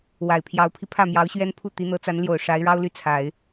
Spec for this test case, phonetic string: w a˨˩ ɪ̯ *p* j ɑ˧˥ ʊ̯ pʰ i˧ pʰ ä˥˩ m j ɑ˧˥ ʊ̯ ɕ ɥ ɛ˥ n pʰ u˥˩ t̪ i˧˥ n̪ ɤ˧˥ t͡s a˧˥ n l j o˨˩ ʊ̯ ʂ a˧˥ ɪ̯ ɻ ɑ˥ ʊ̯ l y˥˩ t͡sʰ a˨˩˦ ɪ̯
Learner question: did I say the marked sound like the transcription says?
no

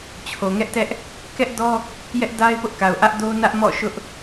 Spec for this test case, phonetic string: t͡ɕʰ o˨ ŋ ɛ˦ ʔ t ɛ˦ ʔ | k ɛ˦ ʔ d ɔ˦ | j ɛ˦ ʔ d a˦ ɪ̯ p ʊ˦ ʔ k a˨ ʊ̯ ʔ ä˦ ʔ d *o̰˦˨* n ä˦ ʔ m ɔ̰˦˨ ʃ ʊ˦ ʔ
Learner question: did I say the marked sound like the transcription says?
no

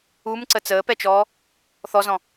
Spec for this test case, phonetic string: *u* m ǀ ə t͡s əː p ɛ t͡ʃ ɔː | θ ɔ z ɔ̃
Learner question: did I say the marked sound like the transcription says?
yes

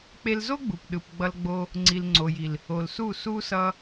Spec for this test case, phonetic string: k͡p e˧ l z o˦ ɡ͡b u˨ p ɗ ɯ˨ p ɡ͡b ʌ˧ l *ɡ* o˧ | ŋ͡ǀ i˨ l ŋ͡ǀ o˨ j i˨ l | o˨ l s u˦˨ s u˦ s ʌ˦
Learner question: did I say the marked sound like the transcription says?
no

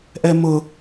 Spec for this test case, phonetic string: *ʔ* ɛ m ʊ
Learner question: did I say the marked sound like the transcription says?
yes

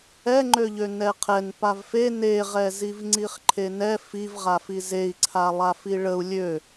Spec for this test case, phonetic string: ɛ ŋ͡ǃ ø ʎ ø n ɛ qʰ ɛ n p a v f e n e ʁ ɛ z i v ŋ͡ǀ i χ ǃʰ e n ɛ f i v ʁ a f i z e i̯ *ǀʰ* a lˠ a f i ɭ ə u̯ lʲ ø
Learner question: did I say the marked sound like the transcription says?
yes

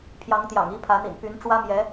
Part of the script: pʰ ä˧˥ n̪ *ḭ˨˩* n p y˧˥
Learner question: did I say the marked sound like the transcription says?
yes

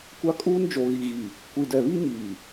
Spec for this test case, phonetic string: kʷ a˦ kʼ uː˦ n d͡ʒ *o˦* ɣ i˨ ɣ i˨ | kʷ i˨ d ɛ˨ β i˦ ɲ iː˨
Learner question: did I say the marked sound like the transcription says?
no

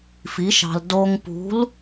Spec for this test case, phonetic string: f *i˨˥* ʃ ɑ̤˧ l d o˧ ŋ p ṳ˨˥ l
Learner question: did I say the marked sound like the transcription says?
yes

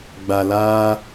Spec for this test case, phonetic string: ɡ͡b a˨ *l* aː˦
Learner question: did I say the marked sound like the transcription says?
yes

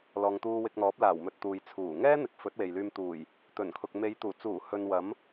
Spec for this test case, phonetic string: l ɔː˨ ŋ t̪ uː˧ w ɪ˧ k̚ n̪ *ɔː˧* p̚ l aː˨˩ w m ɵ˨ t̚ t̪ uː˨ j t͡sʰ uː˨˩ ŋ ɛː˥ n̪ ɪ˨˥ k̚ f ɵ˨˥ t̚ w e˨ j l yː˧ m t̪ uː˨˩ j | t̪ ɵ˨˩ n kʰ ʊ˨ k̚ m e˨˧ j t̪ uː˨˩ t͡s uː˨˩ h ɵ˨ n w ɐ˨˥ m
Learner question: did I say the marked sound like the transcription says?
no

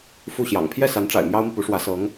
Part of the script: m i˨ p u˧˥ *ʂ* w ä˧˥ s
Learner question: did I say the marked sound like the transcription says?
yes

